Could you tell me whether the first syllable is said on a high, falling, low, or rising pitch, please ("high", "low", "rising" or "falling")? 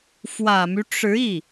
low